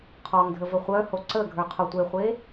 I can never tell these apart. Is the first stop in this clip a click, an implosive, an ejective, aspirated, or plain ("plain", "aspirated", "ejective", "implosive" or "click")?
aspirated